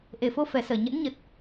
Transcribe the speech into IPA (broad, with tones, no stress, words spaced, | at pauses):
ʔe˨˩fo˧fɛ˨˩səː˧˩ ɲə̰˧˥nɲə˨˩t̚